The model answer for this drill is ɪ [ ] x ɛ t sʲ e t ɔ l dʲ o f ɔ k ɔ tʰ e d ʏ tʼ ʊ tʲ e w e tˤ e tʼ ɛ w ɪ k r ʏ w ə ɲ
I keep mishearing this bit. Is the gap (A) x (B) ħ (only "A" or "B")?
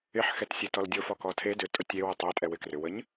B